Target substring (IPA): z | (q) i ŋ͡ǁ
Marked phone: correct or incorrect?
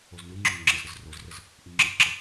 incorrect